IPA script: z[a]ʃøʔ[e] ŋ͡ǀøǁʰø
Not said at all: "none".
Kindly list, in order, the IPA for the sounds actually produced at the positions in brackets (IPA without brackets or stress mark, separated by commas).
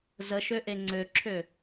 ə, e